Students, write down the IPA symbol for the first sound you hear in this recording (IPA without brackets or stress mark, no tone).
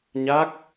ɲ